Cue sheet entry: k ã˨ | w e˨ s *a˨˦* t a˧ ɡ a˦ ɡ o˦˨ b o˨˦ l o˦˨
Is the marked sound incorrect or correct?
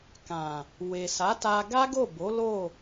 correct